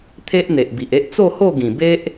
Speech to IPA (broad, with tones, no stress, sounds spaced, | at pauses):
t̪ʰ e˦ ʔ n̪ e˨ ʔ b i˨ ʔ e˦ ʔ t͡s o˥˧ h o˥˧ ɡ ĩ˨˩ b e˦ ʔ